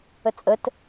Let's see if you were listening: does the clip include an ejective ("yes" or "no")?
yes